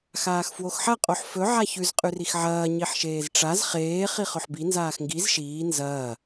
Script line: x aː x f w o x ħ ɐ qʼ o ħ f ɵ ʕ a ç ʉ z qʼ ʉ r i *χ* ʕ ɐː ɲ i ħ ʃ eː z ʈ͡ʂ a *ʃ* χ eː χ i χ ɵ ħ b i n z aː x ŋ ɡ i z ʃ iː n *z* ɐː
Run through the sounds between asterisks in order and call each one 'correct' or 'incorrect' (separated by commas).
incorrect, incorrect, correct